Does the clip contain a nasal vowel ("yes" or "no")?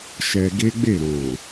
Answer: yes